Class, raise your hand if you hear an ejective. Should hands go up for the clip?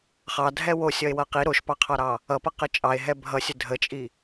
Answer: yes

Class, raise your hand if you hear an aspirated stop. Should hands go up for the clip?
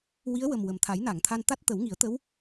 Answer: yes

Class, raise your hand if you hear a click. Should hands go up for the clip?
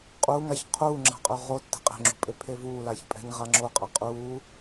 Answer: yes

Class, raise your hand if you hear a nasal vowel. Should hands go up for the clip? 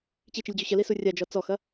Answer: no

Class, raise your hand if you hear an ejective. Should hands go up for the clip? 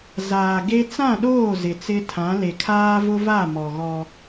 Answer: no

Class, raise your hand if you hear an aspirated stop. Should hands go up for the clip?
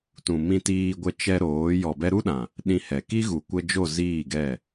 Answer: no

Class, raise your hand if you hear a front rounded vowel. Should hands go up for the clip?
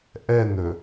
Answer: no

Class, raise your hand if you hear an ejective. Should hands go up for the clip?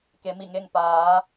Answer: no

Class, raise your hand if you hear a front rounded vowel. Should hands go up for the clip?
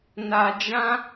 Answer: no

